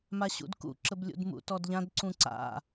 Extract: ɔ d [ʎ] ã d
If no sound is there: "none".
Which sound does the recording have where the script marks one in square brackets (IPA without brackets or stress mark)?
ʎ